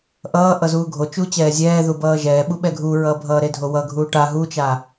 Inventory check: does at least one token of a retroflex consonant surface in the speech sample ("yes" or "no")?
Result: yes